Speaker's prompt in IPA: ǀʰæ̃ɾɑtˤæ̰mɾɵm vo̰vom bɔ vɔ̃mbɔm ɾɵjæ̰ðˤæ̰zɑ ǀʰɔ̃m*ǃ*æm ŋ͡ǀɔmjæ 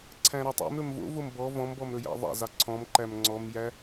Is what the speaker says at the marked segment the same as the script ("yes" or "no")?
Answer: yes